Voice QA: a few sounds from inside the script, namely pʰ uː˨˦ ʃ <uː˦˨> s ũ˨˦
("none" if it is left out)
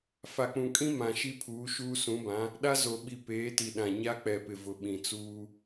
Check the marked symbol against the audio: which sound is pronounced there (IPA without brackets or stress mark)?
uː˦